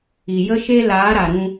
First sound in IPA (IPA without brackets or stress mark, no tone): i